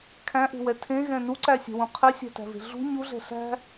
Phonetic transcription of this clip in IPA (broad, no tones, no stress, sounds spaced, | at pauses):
kʰ æ̃ ʔ e̤ w ɛ tʰ ẽ ɣ ɛ̃ n u ǀ æ sʲ ɛ̤ w ũ qʰ ɛ sʲ æ̤ t æ̤ v e̤ ɮ ṳ ɲ u ɮ ɛ̤ ɬ æ̤